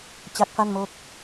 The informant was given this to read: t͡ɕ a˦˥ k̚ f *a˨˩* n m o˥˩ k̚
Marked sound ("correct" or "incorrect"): incorrect